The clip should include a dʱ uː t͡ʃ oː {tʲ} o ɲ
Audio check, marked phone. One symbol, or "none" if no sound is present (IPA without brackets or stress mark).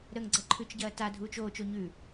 t͡ʃ